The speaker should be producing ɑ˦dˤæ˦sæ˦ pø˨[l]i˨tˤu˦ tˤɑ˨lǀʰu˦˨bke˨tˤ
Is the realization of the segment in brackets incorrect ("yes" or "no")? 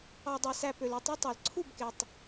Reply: no